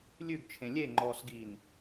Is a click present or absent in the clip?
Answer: present